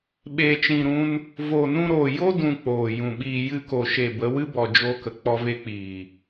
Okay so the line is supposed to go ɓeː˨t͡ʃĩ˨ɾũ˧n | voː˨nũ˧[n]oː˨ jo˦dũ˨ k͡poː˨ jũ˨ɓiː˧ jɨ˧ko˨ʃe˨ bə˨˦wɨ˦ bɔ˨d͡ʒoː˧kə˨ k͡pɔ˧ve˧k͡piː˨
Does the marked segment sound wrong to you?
yes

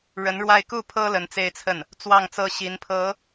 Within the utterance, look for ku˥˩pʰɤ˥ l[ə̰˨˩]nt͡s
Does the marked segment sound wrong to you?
yes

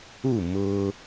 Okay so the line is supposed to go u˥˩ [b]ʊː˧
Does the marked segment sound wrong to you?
yes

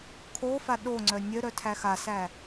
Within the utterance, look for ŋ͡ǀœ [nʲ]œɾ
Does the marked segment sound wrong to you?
no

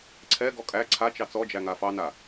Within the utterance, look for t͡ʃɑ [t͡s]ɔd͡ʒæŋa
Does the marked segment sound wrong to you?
no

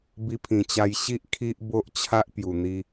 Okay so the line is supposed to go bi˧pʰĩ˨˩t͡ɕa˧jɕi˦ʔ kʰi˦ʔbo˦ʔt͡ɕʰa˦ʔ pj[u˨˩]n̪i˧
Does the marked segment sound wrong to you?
no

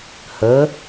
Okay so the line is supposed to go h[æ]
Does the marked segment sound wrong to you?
yes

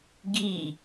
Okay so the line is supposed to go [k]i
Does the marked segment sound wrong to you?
yes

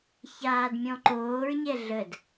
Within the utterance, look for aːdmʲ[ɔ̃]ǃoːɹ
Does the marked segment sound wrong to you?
no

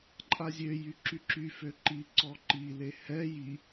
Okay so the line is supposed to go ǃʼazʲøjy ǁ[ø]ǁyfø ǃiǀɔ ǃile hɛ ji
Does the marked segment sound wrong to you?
yes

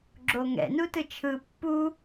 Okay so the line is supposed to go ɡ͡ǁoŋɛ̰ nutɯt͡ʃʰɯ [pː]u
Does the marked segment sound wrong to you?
no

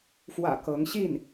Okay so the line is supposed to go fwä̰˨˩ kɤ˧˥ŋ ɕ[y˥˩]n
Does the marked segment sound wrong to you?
yes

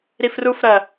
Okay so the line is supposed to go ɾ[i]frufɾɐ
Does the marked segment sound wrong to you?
no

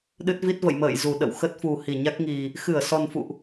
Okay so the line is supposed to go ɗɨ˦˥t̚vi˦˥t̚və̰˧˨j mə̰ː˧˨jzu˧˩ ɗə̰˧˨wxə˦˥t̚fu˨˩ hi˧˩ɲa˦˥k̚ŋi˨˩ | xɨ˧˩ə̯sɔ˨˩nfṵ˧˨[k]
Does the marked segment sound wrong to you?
yes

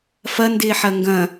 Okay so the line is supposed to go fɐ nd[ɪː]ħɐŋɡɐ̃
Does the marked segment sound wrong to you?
no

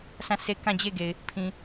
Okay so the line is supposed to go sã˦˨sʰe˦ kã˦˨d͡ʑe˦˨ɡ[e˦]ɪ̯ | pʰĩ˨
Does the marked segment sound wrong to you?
yes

